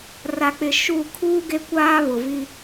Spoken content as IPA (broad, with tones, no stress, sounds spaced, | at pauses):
r a˨ k͡p ɪ˨ ʃ u˦˨ kʰ uː˦ ɡ e˦ kʷ aː˦ β ʊ˨ v i˦